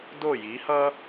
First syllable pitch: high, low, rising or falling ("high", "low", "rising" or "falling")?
falling